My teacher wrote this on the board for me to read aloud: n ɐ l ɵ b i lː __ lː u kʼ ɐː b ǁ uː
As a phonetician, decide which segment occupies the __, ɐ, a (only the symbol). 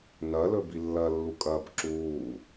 ɐ